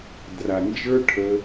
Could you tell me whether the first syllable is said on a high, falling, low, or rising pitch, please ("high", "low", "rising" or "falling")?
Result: low